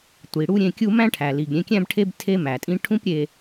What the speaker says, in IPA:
tʷ i˩ ɽ u˥ ɾʲ ẽ˧ kʲ u˥ m æ̃˥ ʈʰ æ˩ l i˩ ɡ ɾʲ ẽ˧ kʲ æ̃˥ b ʈʰ e˥ b tʰ e˥ m æ˩ tʼ ĩ˥ ʈʰ ũ˥ p ɾʲ e˧

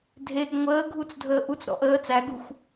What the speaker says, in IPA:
dʱ e ɡ ŋʷ əː ɡʱ u t͡s dʱ əː ʔ u t͡s ɾ ɔ̰ ʔ əː t͡s æ ɡ u xʷ

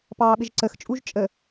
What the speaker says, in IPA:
p ɑː ɓ ɪ ʒ ǀ ə x t͡ʃʼ u ʒ t͡ʃʼ ə

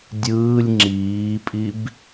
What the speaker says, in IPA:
dʲ ɯː lʲ ŋ͡ǁ iː pʼ i b

